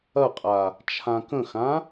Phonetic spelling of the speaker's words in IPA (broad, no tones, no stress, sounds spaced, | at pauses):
ɐ qʼ a | t͡ʃʰ ã k ə̃ x ã